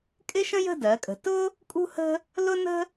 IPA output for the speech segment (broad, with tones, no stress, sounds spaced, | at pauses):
kʼ ɪ˥ ʃ ə̃˥ j ə̤˥˧ d ɜ˩˧ kʼ ə̤˩˧ t ʊ˥ | kʼ ṳ˥ h ə̤˥ | l ʊ˥ n ə̤˥